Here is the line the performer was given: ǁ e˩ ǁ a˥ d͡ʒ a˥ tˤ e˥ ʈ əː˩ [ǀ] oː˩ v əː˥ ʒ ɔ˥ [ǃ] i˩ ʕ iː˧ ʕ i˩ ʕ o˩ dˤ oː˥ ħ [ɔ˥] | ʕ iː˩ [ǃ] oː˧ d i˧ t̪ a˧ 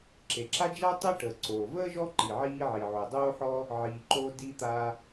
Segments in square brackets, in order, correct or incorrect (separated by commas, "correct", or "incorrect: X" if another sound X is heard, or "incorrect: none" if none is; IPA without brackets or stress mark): correct, correct, correct, correct